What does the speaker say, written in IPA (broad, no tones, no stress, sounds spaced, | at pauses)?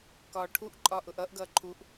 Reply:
k ɒː ʈʰ u ʔ ǃʼ ɒː ʔ ʊ ʔ ʌ ʔ ɡ ʌː ǃʰ u ʔ